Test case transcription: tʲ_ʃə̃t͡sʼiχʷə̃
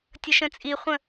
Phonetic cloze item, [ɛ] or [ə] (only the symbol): ə